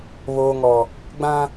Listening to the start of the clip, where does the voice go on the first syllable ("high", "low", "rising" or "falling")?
low